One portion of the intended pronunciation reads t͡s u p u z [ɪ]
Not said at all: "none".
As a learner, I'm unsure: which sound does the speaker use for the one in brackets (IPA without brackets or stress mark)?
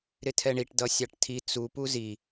i